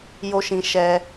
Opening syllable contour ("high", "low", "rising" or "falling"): high